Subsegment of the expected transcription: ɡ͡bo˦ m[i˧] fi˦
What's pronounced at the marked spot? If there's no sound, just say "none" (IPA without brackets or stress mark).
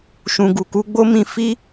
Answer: ĩ˧